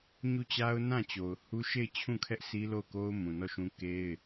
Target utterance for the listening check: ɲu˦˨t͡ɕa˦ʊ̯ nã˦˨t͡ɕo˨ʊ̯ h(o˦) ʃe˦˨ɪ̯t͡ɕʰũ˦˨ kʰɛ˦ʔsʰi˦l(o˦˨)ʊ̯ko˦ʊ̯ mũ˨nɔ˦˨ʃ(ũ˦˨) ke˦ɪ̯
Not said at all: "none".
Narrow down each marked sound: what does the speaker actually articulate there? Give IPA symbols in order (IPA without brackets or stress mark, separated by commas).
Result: u˦, o˦˨, ũ˦